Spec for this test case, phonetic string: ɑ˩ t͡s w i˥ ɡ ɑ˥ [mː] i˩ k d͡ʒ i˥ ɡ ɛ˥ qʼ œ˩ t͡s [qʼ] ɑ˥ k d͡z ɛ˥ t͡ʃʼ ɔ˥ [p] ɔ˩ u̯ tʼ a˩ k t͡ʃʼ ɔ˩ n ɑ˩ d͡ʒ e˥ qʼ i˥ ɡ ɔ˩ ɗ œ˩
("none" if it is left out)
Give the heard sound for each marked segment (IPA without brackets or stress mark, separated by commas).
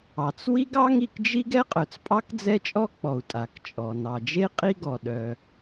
ŋ, pʼ, k͡p